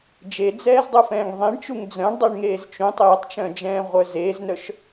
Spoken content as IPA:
d͡ʒ e d͡z ɛː z dˤ u f ɛ̃ː ŋ ðˤ ẽ ɳ t͡ʃ u ŋ d͡z œ̃ ɳ dˤ y ɳ ŋ eː z t͡ʃ ũ tˤ j ə tˤ t͡ʃ œ̃ d͡ʒ ɛ̃ː ʁʷ œ z eː z n œ ʃ

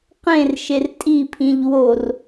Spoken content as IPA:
q ẽ r ʃ e r tʼ i pʰ ĩ ʎ w o r

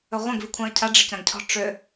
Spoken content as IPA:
ɵ ʁʷ ə̃ ɡ v i kʷʰ ã ə̯ cʰ a ɖ͡ʐ ə c ã ɡ cʰ ɔ̤ ʈ͡ʂ ʏ

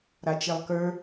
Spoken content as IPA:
ɾ a t͡ʃ e lˠ k ə˞

